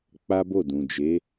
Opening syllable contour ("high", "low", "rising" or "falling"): high